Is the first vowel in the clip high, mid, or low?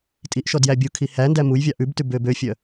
high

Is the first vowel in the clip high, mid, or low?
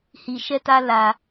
high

